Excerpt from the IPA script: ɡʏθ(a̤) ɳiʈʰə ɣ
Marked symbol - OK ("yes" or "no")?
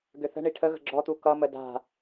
no